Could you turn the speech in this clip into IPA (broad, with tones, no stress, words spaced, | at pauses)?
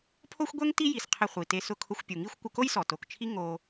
pʰo˥xʷɡʷɛ˥ŋ ti˥ji˩s qʰɪ˧χʷi˩te˧ sʊ˧kʰʊ˧xʷpʲu˩ŋi˥xʷ kʷɪ˧ko˥jsɔ˩ to˩kt͡ʃʰi˥ ŋo˧